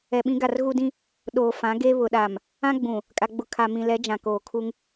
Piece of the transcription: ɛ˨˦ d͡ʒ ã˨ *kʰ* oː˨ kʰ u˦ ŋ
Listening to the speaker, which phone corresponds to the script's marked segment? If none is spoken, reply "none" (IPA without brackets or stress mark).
k